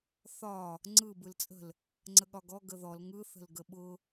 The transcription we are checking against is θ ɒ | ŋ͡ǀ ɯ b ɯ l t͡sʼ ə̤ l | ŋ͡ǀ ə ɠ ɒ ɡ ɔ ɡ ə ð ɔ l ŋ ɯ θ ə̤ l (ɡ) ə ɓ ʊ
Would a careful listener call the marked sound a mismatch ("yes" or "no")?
no